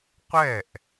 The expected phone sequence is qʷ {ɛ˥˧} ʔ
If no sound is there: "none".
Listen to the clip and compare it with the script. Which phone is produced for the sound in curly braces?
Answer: ɛ˥˩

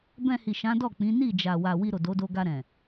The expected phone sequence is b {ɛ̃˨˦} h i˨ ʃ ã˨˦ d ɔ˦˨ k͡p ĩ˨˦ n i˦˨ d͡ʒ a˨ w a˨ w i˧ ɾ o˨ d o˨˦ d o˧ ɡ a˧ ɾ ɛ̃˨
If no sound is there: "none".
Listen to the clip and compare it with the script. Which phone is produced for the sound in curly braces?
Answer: ɛ̃˧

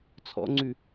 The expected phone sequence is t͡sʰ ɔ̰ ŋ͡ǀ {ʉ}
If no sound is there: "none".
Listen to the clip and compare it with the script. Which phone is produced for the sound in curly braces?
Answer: ʉ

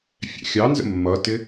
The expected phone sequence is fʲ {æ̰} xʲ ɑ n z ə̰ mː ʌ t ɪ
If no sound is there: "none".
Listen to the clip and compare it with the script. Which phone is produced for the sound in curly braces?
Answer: æ̰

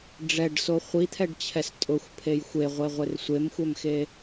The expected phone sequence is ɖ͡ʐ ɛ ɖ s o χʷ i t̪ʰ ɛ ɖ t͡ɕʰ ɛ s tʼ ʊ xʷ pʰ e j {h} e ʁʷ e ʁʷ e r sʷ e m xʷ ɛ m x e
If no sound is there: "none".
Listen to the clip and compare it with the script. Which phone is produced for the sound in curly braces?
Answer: xʷ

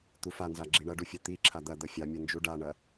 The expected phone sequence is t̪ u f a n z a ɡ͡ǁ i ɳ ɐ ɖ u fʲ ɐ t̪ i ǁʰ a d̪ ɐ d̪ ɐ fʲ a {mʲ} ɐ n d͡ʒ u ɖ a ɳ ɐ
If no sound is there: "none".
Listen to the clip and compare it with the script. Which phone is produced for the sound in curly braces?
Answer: mʲ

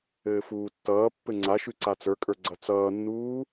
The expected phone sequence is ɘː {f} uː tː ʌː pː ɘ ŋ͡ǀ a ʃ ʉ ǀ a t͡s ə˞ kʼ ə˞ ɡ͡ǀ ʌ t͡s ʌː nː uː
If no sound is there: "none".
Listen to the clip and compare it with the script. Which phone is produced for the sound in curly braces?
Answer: f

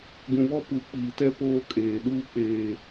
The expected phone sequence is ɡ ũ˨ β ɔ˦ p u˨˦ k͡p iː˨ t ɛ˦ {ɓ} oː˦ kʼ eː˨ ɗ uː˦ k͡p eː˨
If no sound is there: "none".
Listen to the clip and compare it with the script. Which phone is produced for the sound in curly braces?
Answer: p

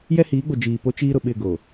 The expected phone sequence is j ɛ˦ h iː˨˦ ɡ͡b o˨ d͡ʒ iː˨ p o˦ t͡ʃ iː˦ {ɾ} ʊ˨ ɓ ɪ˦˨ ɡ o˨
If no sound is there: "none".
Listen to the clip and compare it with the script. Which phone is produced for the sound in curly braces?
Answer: ɾ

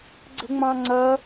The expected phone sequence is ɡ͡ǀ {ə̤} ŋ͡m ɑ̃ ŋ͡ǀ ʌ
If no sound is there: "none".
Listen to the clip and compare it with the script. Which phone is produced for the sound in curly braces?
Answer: ə̤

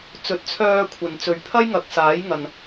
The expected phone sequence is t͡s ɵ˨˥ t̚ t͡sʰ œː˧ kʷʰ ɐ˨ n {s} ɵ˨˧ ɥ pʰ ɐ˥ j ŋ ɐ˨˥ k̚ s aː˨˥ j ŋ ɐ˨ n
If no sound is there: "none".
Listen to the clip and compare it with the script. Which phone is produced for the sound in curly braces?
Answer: t͡s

